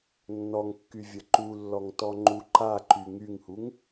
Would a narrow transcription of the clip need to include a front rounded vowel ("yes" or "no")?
yes